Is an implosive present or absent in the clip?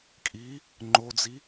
absent